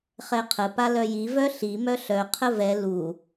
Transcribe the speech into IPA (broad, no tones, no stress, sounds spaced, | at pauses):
χ ɛ qʰ ə p a l œ j i v œ ɬ i m œ ɬ œ qʰ ə v ɛ l u